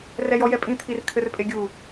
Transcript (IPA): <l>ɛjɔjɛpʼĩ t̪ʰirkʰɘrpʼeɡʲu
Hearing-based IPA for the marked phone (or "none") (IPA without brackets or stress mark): r